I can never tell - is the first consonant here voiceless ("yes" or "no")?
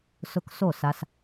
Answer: yes